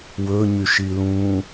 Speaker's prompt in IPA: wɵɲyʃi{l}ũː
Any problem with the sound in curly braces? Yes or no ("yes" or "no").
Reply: no